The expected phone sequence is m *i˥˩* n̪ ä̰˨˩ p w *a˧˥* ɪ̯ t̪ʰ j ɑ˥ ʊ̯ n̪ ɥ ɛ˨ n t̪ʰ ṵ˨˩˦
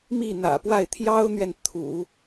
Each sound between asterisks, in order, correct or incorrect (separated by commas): correct, incorrect